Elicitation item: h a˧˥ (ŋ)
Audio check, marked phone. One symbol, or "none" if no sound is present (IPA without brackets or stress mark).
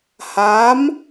m